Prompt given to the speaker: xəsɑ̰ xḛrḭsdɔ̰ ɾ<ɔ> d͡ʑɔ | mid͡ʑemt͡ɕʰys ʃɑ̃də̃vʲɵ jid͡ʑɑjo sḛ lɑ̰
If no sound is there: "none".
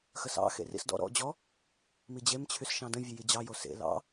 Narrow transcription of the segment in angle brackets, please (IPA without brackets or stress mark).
ɔ̰